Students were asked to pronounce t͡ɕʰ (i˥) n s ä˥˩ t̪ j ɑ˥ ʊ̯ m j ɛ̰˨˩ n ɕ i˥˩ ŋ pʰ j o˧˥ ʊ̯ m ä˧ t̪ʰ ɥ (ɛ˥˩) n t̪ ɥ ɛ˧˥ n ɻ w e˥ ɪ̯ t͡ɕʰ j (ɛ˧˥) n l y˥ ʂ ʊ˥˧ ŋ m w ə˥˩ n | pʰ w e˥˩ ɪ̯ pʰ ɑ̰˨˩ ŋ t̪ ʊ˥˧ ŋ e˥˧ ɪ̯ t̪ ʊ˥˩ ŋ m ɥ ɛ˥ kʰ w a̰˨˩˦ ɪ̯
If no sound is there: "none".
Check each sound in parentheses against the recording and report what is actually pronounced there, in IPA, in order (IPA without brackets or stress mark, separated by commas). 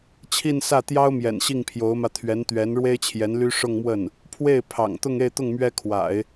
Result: i˥˧, ɛ˧˥, ɛ˧˥